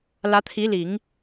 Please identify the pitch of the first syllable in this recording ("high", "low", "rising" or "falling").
rising